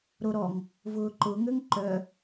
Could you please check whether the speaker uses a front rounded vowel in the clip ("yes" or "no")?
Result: yes